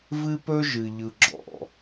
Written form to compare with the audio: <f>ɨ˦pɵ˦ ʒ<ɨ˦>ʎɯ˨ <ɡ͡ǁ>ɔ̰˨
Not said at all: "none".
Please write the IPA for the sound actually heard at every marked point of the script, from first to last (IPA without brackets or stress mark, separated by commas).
v, ɨ˨, ɡ͡ǁ